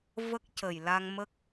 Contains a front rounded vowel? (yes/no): no